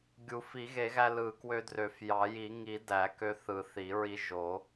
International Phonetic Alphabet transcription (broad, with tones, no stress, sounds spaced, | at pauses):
ɡʲ u˨˩˦ f i˨˩˦ ɣ e˨˩˦ ɣ æ˧ l ɯ˨˩˦ k w ø˧ d r ø˨˩˦ f j ɑ˨˩˦ j i˨˩˦ ŋ i˨˩˦ d æ˨˩˦ k ø˧ θ ɯ˨˩˦ θ i˨˩˦ ɹ i˧ ʒ o˨˩˦